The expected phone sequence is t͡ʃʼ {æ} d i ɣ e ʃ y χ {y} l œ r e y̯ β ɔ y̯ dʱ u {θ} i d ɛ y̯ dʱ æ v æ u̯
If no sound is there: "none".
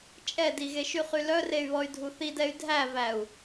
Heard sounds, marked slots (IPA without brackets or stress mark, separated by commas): ɛ, y, θ